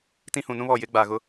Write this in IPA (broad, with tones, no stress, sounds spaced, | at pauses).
t ĩ˦ h ũ˨ n ũ˦ β ɔ˨ j ɪ˨˦ ɡ͡b a˨ ɣ ʊ˦